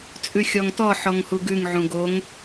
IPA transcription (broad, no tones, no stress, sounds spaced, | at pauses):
t͡sʼ ʉ xʲ ɔ ŋ t ɔ ħ ɔ ŋ h u ɡ ʉ ŋ ʕ ũ ɡ o ŋ